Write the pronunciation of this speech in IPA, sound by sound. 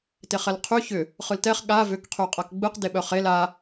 t e χ ɛ l qʰ y ç ʏ | χ ɯ l t ɛ χ ɠ a v ʏ k qʰ y qʼ a k ɡ͡b ɯ q d e ɓ œ χ e l a

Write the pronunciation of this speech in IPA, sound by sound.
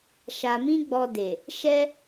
ʃ a˨ m ĩ˧ ɡ͡b ɔ˧ d e˨ | ʃ ɛ˦

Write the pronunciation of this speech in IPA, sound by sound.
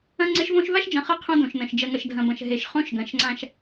ɐ̃˦ ŋ͡ǀ e˦ ʃ v õ˦ ʃ v a˦ ʃ d͡ʒ ɐ̃˨ χ ɤ˦ qʰ õ˦ d õ˨ ʃ n ɐ̃˨ ʃ d͡ʒ ɐ˨ ŋ ɐ˨ ʃ dʱ ɐ̃˨ b ɐ̃˨ ʃ ɦ e˨ ʃ χ õ˦ ʃ ɡ ɐ̃˨˦ ʃ ŋ͡ǀ ã˦ ʃ

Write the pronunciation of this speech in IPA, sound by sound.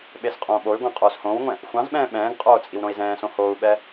ɓ e s qʼ õː ɓ o y̯ ɡʷ ɑ̃ qʼ oː s h õː w ŋʷ ɛ̃ | xʷ ɑ̃ z ɓ ɛ̃ː ɓ ɛ̃ː ɡ qʼ oː t͡sʼ i w ɾ õ i̯ z ɛ̃ː s õ h oː u̯ ɓ ɛ

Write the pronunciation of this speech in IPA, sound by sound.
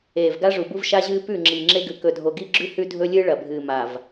eː˨ v ɡ a˦ ʐ u˨ b u˦ v ʃ a˦ ʑ ɨː˦ p ʉ˦˨ ŋ͡ǁ iː˨ ŋ͡ǁ e˦ ɡ ʉ˨ k ɵ˨ dʱ o˨ ɡ i˦ ɡ͡ǁ ʉ˦ h ʉ˦ dʱ ɵ˦ lʲ ɨː˦ ɭ ɐ˨ bʱ ɨː˨ m a˨ v

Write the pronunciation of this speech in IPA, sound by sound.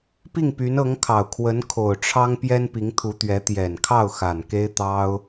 p i˥˩ ŋ p y˧˥ n ɤ˧˥ ŋ kʰ ɑ˨˩ ʊ̯ kʰ w ə˧˥ n kʰ o˨˩ ʊ̯ ʈ͡ʂʰ ɑ˥ ŋ p j ɛ˥ n p i˧˥ ŋ t̪ʰ u˧˥ t̪ ɥ ɛ˧˥ t̪ j ɛ˨˩ n kʰ ɑ˥˩ ʊ̯ x a˨˩ n k e˥ ɪ̯ t̪ ɑ˥ ʊ̯

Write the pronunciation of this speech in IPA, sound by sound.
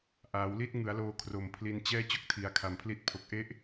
ʔ aː˩˦ w l i˥˩ t̚ ŋ ɯ˩˦ a̯ l oː˧ kʰ r o˨˩ m pʰ l i˧ n t͡ɕ ɛː˥˩ t͡ɕ o˥˩ k̚ tʰ i˩˦ a̯ kʰ a˨˩ m pʰ l i˦˥ t̚ pʰ o˨˩ k̚ ʔ e˦˥ ʔ

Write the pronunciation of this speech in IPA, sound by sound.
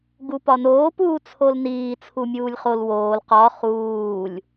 ɡ u p ɒ n oː p uː t͡sʰ o l n iː t͡sʰ u mʲ uː lʲ χ o l w oː l q ɒ χ uː lʲ

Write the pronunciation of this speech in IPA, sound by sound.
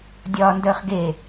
dʲ ɒː n d əː χ ɡ e

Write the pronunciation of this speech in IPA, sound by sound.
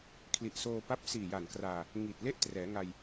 kʰ l i˨˩ ʔ s oː˧ p a˦˥ p̚ s iː˨˩ j a˨˩ n k r aː˧ | ŋ i˨˩ t̚ l e˥˩ ʔ t r ɛː˩˦ ŋ a˧ j

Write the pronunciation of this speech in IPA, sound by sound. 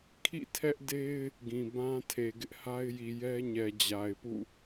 kʰ ḭ˦˨ tʰ ɛ˦ ʔ d e˦ ɪ̯ | ɡ ĩ˨ b ã˦ tʰ e˨ ɡ ɪ˦ ʔ h a˦ ɪ̯ j i˨ j ɛ˦ ɲ ɛ˨ d͡ʑ a˨ ɪ̯ p ṵ˦˨

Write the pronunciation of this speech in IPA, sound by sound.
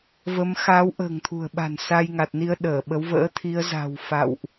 v ə˨˦ m x a˨˦ w ʔ ə̤ː˨˩ ŋ t̪ʰ ṳ˨˩ ə̯ ɓ a̤˨˩ n s a˧ j ŋ a˨˩ t̚ n i˧ ə̯ ɗ əː˧˩ ɓ ə˨˦ w v ə̰ː˧˥ t̪ʰ i˨˦ ə̯ z a̤˨˩ w f a̰˧˨ w ʔ

